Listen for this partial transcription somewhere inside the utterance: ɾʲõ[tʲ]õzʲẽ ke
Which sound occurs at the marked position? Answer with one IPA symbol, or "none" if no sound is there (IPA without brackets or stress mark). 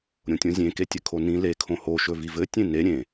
tʲ